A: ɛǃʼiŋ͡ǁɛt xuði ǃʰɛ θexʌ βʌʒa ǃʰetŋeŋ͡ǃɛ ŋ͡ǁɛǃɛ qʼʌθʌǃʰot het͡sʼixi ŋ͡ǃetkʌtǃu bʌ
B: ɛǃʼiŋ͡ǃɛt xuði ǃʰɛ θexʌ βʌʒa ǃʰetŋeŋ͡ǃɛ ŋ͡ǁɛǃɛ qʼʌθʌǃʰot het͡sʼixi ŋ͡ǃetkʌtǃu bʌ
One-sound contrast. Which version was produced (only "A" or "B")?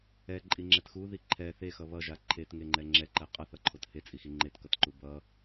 A